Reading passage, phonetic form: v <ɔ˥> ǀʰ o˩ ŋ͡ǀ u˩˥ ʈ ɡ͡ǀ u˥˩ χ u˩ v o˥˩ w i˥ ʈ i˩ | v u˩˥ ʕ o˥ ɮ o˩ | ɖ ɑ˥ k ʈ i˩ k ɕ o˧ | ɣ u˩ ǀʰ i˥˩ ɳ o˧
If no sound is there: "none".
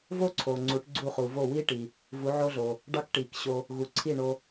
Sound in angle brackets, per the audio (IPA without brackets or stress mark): o˥